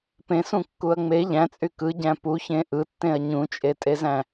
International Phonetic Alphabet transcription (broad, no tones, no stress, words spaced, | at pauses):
pẽsũkːuɐ̯ ŋ͡me ʎæ̃t͡sʼy kɯɟæ̃ puçẽ ʔɯtːẽɐ̯ ɲũt͡ʃʼetʼezæ̃